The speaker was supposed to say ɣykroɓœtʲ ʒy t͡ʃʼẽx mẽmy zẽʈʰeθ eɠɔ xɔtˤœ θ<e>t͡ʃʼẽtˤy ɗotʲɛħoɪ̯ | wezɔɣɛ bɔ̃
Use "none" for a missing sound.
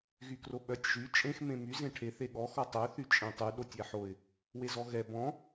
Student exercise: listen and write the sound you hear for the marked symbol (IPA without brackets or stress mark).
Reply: y